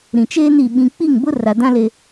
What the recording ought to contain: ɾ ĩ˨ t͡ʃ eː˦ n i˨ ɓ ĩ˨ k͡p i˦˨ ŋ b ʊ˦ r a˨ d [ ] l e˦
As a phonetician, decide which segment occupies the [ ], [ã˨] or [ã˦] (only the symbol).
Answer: ã˦